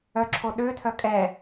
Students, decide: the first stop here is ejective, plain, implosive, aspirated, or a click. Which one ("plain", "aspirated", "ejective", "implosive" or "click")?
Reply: click